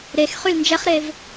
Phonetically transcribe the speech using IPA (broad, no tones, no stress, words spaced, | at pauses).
ɾexχyl nd͡ʒɛχɾev